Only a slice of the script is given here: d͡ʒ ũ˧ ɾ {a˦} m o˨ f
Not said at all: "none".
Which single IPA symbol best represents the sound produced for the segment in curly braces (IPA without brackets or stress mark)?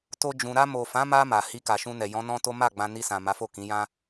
a˧